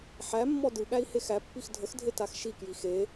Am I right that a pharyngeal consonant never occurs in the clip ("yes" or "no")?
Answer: no